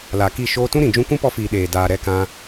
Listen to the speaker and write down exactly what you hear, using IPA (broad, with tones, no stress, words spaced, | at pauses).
la˨ki˦˨ ʃoː˧tũ˦ɾĩ˨ d͡ʒũ˧kʷũ˦pɔ˧fiː˨ ɗeː˨ daː˨ ɾɛ˧kã˧